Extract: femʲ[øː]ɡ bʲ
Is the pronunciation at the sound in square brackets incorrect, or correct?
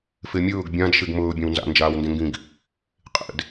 incorrect